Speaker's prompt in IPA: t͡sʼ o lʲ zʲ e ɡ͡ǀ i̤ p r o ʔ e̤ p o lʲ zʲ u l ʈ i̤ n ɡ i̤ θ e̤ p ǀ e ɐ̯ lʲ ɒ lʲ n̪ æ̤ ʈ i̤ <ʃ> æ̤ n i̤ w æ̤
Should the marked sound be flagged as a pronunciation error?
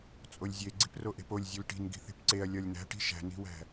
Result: no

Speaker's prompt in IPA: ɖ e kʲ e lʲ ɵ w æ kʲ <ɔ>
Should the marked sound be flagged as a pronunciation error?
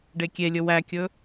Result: yes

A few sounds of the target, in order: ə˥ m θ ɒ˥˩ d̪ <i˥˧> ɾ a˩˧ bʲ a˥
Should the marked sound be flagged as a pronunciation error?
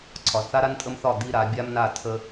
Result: no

